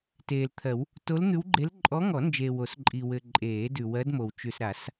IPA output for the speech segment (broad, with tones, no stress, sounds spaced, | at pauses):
t eː˨ l t̪ʰ ɜ˨˩˦ w | t o˧˥ l n̪ ʉ˧˥ w ɡ͡ǃ e˧˥ l ǃʼ ɔ˧˥ ŋ ɔ˨˩˦ n d͡ʒ eː˨ w o˨˩˦ s ǃʼ i˨ w ɘ˨ ǃʼ eː˨˩˦ d ʉ˨ w ɜ˧˥ d m o˨ w t͡ʃ ʉ˨ s ɾ a˨˩˦ s